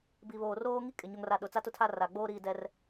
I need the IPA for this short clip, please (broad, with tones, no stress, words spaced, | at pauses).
bi˨βoː˨roː˦ ŋi˦kʼɪ˨ ɲo˨ŋra˨ ɗʊ˨t͡sa˦ tʊ˦tʰa˦ ra˨ɡ͡boː˦ ɾiː˦dɛ˦r